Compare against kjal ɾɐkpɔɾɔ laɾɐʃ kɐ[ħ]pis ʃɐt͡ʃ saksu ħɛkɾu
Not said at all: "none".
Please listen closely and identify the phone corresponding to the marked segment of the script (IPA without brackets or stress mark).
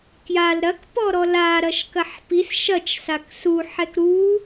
ħ